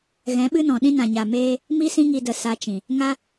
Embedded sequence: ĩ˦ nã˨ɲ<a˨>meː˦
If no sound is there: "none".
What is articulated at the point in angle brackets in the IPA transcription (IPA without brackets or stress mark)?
a˨